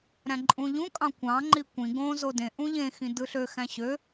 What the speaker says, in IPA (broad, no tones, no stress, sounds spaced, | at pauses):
ɾ æ̃ ǃʼ ũ ʎ ũ kʼ ɑ̃ kʷ ɑ̃ ŋ͡ǃ i kʷ ĩ ɡ õ z o d ẽ ʔ ũ ʎ ẽ x ĩ d ɯ ɬ ø x æ̃ ɕ ø